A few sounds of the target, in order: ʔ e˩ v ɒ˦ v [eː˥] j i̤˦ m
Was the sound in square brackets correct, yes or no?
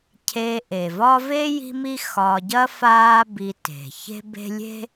no